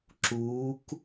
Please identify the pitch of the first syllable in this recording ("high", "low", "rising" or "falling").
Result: rising